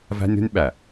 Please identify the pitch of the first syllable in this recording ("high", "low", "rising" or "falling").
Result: high